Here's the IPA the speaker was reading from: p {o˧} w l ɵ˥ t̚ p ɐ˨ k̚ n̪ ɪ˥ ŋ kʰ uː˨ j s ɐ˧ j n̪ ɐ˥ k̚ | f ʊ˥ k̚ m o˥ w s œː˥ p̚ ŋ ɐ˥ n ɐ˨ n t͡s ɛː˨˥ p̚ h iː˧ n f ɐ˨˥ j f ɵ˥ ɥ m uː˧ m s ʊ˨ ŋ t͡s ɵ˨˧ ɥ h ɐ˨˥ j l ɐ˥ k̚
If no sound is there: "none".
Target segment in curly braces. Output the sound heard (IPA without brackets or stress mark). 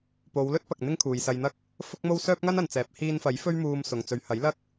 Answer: o˨˧